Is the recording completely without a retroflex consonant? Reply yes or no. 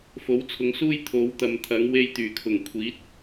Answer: yes